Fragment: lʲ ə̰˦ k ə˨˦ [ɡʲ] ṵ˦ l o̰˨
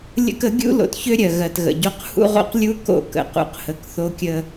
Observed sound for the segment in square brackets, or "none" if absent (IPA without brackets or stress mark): ɡʲ